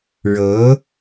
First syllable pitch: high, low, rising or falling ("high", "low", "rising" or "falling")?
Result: rising